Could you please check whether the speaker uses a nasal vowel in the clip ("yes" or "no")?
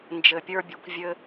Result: no